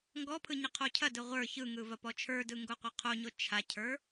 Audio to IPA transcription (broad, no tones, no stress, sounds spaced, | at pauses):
ŋ ɡ ɔ pʰ ɯ ɲ ɐ qʰ o cʰ ɐ d ɯ ʁʷ ə˞ ç ɯ ŋ ɯ v ɐ p ɔ t͡ʃʰ ə˞ d ɯ ŋ ɡ o qʷ a qʰ o ɲ o t͡ʃʰ a cʰ ə˞